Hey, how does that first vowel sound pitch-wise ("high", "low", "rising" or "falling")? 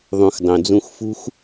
low